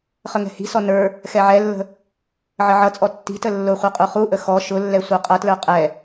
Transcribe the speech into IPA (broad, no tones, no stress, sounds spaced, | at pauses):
χ ə ŋ ɛ̤ h i̤ s ɔ n ə˞ | x ɛ ʕ ɛ lː ə̤ | ʕ ə ʕ ʌ t͡sʼ ɔ tː i̤ t ə lː ʊ χʷ ə˞ qʼ u χ u ʔ ə x ɔ ʃ ʊ lː ɛ sʷ ə˞ qʼ ʌ t l ə˞ qʼ ɛ